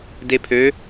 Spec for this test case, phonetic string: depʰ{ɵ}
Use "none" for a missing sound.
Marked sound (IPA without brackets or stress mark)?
ø